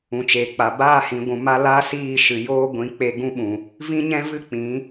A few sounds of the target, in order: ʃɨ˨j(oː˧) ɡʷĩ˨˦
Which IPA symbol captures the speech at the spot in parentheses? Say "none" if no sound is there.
oː˦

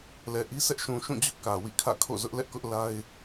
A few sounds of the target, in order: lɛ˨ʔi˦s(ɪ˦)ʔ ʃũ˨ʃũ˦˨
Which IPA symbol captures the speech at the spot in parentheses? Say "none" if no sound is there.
ɛ˦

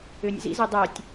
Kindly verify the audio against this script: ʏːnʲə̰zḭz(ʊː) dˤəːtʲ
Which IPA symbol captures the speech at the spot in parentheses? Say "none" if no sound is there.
əː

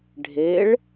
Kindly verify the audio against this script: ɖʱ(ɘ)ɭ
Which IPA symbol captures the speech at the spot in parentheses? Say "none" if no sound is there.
e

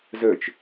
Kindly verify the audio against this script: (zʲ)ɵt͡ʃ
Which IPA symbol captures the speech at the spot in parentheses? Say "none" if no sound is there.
z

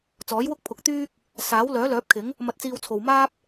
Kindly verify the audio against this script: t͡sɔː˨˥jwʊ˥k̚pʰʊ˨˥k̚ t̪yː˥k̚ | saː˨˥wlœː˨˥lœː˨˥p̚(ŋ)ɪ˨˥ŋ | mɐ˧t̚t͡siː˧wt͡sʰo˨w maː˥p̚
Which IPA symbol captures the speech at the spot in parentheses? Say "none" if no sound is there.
kʰ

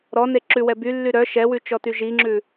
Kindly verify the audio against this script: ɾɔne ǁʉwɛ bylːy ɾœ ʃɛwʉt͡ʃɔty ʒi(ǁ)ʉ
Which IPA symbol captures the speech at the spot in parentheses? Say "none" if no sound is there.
ŋ͡ǁ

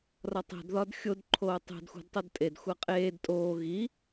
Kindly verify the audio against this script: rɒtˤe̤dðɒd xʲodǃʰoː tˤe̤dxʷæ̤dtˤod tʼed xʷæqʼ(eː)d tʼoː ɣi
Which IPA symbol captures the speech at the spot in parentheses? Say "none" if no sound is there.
eː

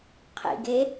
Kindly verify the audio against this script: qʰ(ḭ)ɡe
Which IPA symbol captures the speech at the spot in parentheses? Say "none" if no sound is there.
ḭ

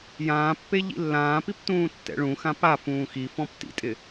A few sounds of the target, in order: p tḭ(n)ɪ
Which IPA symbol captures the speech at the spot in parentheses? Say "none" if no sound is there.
tʼ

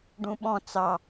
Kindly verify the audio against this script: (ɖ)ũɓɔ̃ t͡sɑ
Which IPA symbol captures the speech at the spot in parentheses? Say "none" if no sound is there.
ɖ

